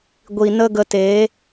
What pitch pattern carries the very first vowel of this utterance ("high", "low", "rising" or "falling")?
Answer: low